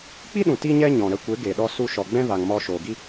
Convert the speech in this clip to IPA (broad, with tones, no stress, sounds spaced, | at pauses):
k͡p i˦ ɗ ũ˨ t i˦ ɲ ɛ˦ ɲ ɔ̃˨ ɾ ə˧ kʷ e˨˦ ɡ e˨ ɗ ɔ˧ s u˧ ʃ ɔ˨ ɡ͡b ɛ̃˦ v a˨ ŋ m ɔ˧ ʃ oː˨ ɡ i˦